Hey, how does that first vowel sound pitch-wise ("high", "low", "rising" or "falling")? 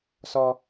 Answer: high